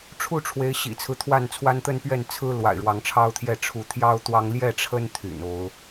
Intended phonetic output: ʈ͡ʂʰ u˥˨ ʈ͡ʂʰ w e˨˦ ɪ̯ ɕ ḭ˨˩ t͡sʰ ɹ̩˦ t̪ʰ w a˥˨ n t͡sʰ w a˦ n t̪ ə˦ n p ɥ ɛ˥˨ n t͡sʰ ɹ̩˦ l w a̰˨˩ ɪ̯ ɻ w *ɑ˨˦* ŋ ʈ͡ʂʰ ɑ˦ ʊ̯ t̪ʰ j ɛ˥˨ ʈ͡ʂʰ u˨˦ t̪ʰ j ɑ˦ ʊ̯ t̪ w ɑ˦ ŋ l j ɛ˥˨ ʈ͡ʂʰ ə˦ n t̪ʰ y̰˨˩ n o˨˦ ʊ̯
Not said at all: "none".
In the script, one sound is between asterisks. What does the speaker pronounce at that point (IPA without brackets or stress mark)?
ɑ˨˦